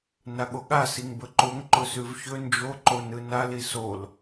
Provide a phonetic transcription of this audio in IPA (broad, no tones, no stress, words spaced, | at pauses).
naɠoɠa siŋbɵǃoŋ ǃʊsʉvçɵ nd͡ʒoǃo nɯnali sol